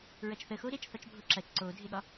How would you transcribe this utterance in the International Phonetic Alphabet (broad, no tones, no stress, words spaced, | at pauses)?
ɹɐt͡ʃθə xoɾet͡ʃ θɒt͡ʃbʱoǁɐt͡ʃ ǀodʱeɠɒ